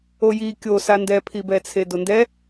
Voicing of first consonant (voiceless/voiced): voiced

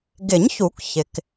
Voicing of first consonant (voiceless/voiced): voiced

